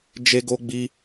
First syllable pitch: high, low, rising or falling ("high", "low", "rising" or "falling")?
high